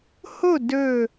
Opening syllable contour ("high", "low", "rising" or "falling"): falling